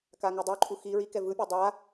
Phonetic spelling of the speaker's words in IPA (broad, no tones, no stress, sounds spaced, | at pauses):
k a ŋ ɯ dˤ o ǃʼ u x i ɹ i k ɛ v ɯ pʲ ʌ dˤ a